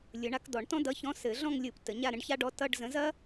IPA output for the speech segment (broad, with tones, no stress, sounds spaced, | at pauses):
lʲ ɯ˨˩˦ ɳ a˨˥ k d ɔ˨˩˦ ɳ t ɔ̃˥ d ʌ˧˥˧ ç ɔ̃˧˥˧ s ɘ˨˩˦ ɮ ɔ̃˥˧ ŋ lʲ ɯ˨˩˦ p t ə˨˩˦ ɲ a˥˧ ɾ ə̃˨˥ ɖ ç a˥ ɖ ɔ˧˥˧ t ʌ˧˥˧ ɖ z ə̃˨˥ z ɐ˥